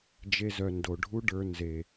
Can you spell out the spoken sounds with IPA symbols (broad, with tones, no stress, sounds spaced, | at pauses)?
d͡ʒ e˧ z œ˨ n d o˨ ɖʱ u˦ ɖ ə˞˧ n z e˨